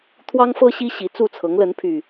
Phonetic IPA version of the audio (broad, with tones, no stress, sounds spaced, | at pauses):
t̪ʰ w ɑ˦ ŋ f ɤ˦ ɕ i˦ ɕ i˨˩ t͡s u˥˨ t͡sʰ ɤ˨˦ ŋ l ə˨˦ n pʰ y˨˩